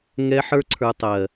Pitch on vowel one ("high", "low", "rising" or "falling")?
high